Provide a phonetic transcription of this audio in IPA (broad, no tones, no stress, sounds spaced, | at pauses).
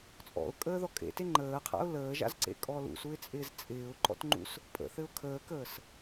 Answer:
t͡sʼ ɔ̰ ʊ̯ kʼ əː ð ɔ kʼ ḛ t e ŋ͡ǃ əː qʰ a̰ ʊ̯ l əː ʒ a̰ z ǀ ḛ kʼ ɔ l ṵ s u ɪ̯ t͡sʼ ɪː z t͡sʼ ɪː ʊ̯ ǃ ɔ̰ t ŋ͡ǃ ṵ s | pʼ ə̰ θ ɘ ʊ̯ kʰ əː k əː s